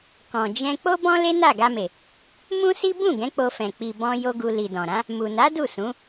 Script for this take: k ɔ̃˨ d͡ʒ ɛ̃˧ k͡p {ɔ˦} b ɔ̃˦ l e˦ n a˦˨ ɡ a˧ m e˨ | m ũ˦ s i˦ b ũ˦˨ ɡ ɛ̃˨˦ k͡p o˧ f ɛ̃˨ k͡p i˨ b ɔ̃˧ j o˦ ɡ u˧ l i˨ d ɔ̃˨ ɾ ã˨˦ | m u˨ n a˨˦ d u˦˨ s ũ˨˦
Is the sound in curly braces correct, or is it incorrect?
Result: incorrect